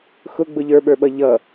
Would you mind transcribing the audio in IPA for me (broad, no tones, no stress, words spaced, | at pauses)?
xʊɡ͡bʊ ʎə˞ɓə˞ɓʌ ʎʌ